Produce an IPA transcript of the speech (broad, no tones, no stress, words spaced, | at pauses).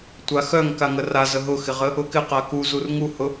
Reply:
tʷaxœŋ kaŋəra zəɦʊxɪʁə | ʊkɪqa kuzur ŋuhʊ